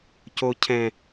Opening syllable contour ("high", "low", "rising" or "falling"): high